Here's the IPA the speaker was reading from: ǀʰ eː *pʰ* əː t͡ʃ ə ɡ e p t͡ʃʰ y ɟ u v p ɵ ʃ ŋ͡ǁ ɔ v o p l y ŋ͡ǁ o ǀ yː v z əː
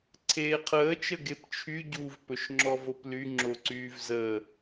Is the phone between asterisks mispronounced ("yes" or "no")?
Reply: yes